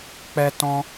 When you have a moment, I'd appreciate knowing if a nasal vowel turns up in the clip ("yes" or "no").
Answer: yes